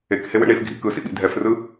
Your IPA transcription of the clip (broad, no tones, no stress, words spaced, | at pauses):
ekhewḛ ɳifɡʱḭ kɯsḭɓḭ dʱɛfrɯ